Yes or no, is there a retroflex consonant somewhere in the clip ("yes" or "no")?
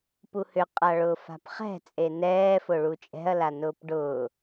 yes